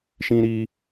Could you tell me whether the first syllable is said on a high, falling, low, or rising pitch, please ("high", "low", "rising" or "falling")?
high